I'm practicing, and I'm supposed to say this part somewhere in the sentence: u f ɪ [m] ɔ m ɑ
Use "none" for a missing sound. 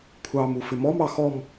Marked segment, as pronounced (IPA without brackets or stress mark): m